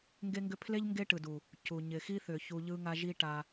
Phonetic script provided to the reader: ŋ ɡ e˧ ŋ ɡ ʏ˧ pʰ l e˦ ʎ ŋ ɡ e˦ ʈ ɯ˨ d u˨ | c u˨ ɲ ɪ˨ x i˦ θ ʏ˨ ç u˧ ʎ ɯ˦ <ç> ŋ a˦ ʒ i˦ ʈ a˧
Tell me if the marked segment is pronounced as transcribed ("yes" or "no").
no